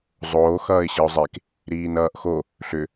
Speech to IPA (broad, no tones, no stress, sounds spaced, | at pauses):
zˤ oː x ʌː ɪ̯ ɕ i ʊ̯ zˤ e k | ɾ iː n ʌː ʔ x o | ɬ ʏ